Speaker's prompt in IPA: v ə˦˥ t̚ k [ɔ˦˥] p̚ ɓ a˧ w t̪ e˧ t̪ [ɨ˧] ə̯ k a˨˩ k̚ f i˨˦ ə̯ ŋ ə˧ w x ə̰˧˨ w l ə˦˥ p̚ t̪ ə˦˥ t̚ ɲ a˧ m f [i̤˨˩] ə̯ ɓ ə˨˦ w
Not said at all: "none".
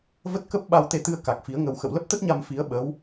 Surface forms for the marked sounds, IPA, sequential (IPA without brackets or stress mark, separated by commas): ə˦˥, ɨ˧, i˨˦